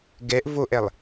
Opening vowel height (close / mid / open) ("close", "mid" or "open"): mid